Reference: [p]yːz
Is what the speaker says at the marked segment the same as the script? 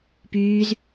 yes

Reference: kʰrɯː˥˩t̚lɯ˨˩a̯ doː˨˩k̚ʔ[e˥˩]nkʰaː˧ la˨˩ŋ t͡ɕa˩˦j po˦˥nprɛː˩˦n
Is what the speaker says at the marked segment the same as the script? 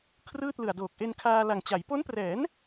no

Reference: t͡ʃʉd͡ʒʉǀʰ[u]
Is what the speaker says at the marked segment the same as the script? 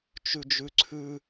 no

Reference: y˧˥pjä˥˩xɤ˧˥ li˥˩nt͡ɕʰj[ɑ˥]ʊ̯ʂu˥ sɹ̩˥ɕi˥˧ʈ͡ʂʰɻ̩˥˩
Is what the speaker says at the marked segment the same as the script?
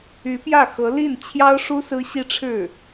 yes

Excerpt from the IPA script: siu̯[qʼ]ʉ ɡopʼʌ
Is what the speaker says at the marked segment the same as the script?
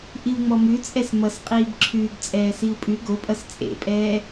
no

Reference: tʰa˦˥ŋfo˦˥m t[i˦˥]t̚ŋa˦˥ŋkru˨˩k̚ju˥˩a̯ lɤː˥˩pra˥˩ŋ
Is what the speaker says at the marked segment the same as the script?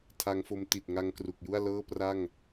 no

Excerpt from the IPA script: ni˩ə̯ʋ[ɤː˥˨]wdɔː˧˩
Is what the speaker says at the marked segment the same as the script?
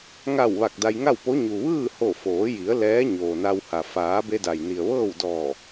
yes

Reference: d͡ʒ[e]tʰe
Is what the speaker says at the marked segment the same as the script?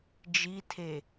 no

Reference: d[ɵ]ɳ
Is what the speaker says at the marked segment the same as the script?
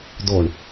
no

